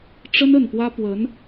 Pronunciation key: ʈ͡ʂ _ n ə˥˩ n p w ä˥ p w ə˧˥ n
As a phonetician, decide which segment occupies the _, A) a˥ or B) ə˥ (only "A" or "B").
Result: B